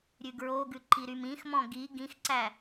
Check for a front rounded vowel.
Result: present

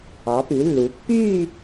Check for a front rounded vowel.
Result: present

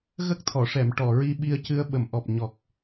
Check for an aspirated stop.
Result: present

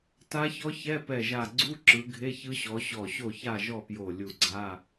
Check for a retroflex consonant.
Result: absent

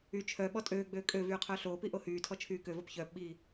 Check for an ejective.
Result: present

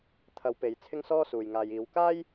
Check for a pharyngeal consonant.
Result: absent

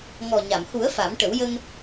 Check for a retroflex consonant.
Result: present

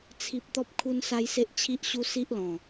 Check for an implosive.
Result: absent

